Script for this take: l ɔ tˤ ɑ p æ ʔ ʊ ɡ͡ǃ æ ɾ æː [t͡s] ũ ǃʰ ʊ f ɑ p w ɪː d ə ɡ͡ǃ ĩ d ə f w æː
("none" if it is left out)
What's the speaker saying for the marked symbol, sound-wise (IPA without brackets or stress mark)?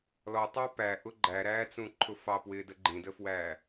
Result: t͡s